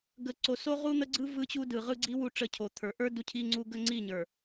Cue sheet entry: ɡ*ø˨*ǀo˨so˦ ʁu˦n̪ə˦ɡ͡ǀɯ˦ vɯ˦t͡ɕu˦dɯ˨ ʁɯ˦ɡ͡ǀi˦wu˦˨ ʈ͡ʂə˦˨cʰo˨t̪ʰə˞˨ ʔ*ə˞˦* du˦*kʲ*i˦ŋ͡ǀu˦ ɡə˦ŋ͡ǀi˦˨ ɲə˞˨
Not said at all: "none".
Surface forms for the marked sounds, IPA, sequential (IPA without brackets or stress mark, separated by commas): ə˨, ə˞˦, cʰ